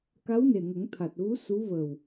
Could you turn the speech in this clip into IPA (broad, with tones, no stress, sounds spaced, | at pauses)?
k a˧˥ w n e˨˩ ŋ ə˨˩˦ ŋ t̪ʰ a˨˩ t̚ ɣ u˧˥ s u˧˥ v əː˨˩ w